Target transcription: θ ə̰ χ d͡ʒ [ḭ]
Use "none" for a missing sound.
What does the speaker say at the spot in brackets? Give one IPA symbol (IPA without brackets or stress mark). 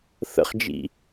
ḭ